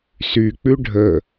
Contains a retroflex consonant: yes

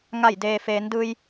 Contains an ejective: no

